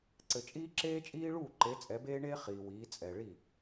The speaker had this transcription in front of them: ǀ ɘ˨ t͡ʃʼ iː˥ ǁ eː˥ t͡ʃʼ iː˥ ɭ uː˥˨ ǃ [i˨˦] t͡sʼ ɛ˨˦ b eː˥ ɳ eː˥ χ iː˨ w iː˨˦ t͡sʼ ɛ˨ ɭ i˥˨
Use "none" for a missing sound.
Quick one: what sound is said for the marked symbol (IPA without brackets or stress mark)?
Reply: e˨˦